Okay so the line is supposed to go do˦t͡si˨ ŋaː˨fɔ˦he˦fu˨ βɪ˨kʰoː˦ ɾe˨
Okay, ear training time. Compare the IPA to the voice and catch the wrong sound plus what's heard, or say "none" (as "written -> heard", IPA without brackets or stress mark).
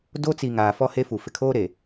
β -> f